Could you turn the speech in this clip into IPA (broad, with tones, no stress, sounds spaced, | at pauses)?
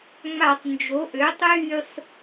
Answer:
ŋ͡m a˧˩˧ tˤ n d͡ʒ o˩˥ ʔ ø˩˥ tˤ yː˥˨ sˤ